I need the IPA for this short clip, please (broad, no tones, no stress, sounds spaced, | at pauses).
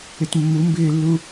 ɪ t mː u m b ɪː lː u